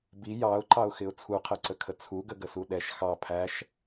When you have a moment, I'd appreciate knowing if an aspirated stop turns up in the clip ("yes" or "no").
yes